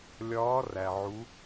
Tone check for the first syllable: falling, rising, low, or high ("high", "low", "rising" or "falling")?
rising